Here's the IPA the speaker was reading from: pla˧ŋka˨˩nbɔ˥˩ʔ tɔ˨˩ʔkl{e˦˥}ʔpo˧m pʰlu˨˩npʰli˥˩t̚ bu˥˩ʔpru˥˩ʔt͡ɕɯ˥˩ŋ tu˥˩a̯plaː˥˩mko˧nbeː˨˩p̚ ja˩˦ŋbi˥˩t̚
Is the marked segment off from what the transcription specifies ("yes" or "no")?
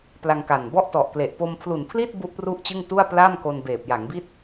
yes